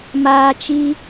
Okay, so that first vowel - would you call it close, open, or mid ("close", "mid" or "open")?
open